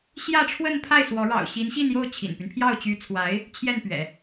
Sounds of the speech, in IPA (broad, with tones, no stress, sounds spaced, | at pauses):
ɕ j ä˥˧ ʈ͡ʂʰ w ə˥˧ n pʰ a˥˩ ɪ̯ s w ɔ˧˥ ɻ ɑ̰˨˩ ʊ̯ ɕ i˧˥ n ɕ i˥˧ n j o˥˩ ʊ̯ t͡ɕʰ ḭ˨˩ n p y˦ n pʰ j ɑ˥˩ ʊ̯ t͡ɕ y˧˥ t͡sʰ w a˧˥ ɪ̯ | t͡ɕʰ j ɛ˥˩ n p ɥ ɛ̰˨˩˦